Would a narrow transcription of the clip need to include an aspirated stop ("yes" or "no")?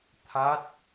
yes